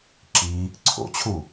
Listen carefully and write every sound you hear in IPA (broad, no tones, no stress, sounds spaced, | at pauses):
ǁ i | ǀʰ o̰ t͡ɕʰ u